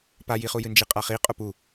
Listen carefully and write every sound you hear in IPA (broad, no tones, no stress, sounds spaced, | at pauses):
p a j i χ u j ɨ n d͡ʒ i qʼ a χ i qʼ o p u